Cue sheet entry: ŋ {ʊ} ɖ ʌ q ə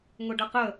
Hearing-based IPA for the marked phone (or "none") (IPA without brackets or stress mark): ʊ